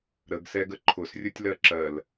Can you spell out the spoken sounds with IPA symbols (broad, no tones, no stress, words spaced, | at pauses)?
ɾəɡsɛɡə ǃʰʊsrʲʊtʲlɜ ǁɜl